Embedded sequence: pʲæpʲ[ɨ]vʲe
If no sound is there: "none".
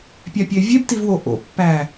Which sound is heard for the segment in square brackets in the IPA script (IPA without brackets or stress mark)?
e